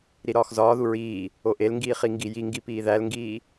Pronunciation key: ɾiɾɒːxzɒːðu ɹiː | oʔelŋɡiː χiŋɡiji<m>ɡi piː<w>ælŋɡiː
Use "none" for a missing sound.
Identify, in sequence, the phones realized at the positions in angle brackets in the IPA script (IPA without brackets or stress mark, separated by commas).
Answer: ŋ, ð